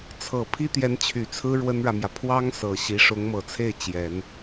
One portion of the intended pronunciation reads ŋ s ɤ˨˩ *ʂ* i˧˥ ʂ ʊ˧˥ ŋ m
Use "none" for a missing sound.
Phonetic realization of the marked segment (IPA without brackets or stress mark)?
ɕ